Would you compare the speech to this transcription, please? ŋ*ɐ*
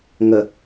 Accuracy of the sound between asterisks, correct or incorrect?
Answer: incorrect